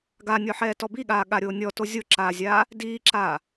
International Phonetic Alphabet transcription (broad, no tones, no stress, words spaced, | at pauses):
ɡanʲɔħɛː tɔbiɠaː ɠaɾʲoːnʲɔ tozʲoǁaːzʲaː | diːǁaː